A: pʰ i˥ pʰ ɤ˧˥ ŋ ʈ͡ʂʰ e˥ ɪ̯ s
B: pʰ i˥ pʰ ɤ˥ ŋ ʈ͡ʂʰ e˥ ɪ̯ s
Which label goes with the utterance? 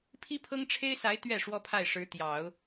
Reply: B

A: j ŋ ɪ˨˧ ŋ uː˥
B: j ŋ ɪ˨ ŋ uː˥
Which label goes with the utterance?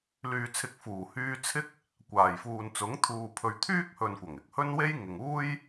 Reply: B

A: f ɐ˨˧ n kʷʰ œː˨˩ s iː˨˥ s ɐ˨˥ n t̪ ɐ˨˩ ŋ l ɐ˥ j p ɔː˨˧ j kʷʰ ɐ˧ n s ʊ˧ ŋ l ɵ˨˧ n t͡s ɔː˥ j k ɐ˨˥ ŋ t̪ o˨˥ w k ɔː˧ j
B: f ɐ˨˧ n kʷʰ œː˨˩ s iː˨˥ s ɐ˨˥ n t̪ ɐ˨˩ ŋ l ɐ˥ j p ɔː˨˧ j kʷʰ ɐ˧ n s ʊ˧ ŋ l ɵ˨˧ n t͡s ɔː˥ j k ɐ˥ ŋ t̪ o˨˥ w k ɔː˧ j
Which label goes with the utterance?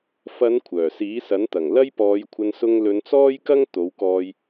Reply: B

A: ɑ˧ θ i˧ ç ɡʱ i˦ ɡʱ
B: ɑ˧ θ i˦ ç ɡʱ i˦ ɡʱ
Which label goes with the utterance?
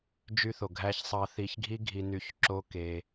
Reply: A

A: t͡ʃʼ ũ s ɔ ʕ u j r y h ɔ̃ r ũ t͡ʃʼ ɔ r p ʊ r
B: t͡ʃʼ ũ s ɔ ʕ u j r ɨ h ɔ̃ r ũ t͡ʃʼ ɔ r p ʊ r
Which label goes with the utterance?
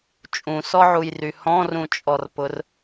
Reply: A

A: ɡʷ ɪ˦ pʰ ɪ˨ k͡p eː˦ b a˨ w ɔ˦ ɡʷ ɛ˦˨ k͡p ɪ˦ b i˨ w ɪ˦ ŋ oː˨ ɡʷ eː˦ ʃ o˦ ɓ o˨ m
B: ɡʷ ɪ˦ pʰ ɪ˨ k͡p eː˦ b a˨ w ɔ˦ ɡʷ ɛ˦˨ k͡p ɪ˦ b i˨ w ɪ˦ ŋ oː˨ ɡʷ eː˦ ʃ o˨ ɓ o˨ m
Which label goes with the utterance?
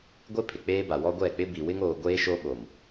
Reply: A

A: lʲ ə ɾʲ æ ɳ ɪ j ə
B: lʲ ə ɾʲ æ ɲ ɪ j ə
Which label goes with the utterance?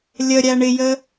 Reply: A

